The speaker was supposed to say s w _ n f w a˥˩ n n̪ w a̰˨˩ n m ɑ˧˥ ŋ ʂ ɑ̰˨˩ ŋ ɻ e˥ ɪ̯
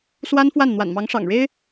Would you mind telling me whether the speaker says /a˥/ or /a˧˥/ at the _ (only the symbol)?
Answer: a˥